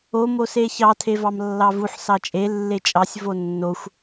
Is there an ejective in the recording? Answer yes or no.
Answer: yes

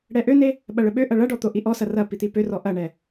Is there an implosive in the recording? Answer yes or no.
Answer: yes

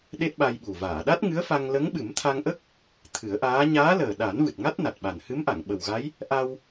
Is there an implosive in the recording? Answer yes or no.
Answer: yes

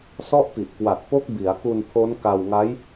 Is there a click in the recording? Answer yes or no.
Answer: no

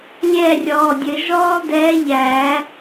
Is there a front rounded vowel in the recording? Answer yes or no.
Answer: no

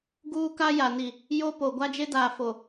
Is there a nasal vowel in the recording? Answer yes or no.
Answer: no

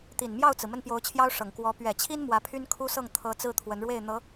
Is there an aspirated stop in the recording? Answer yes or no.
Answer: yes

